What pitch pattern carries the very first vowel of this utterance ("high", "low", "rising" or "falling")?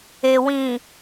low